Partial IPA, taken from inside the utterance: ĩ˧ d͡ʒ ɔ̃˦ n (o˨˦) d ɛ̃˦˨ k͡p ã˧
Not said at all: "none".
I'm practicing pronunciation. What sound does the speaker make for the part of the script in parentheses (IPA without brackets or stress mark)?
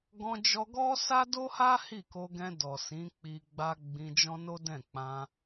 o˦